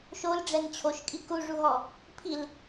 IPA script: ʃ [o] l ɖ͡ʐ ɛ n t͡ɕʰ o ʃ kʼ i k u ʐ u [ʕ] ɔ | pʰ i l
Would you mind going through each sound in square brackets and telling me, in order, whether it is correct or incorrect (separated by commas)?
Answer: correct, incorrect